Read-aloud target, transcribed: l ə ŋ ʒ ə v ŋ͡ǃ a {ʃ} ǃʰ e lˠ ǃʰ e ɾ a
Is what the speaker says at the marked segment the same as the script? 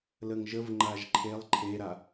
no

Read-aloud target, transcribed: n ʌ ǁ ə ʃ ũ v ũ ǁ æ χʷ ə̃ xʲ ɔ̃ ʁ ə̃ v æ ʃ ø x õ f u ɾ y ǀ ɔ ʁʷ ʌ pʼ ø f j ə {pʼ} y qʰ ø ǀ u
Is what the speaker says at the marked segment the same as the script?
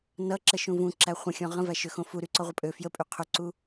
yes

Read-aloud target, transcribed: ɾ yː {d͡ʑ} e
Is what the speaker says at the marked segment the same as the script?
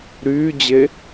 yes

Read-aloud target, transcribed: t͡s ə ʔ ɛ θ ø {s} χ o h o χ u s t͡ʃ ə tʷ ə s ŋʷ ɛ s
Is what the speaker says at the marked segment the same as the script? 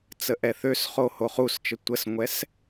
yes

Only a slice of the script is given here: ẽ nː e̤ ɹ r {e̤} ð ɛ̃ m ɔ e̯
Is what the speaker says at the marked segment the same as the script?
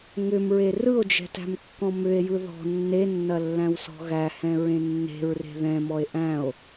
yes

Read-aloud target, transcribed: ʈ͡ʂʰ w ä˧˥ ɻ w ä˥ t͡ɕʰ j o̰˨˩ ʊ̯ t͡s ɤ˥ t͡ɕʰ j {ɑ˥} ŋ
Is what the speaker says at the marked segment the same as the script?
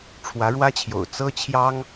yes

